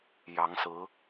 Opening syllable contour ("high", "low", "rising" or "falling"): rising